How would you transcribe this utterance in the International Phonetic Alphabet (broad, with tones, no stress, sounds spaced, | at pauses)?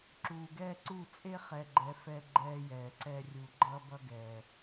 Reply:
ǁ uː˨ ɡ ɛː˦ ǀ u˦˨ t͡sʼ e˦ χ ɛ˨ ɡ͡ǃ ɛ˨ f ɛ˦ ɡ͡ǃ ɛː˦ j ɛː˨ ǀ ɛ˦ rʲ u˨ ɡ͡ǃ ʌ˦ b ʌ˦ ɡ ɛː˨